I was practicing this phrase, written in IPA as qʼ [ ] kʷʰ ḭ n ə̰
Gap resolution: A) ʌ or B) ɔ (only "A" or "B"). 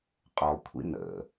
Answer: B